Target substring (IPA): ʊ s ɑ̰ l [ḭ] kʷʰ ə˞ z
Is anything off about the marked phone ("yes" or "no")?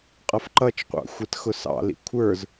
no